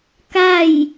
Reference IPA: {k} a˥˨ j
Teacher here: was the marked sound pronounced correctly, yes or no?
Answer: yes